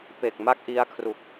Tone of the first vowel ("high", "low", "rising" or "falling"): low